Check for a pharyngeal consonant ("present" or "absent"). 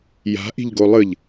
absent